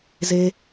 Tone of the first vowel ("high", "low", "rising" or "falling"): high